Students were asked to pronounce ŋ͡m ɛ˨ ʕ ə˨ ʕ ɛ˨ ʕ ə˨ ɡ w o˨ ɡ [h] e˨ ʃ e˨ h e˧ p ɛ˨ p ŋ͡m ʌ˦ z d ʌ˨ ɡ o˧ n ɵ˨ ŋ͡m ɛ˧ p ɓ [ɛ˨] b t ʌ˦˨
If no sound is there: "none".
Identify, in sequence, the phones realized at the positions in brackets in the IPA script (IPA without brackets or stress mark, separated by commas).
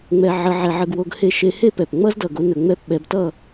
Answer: h, ɛ˨